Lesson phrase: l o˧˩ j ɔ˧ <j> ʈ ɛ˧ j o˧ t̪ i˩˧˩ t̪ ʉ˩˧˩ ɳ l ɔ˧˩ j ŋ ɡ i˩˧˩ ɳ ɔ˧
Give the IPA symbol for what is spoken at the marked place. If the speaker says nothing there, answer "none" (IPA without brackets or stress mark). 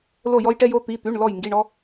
j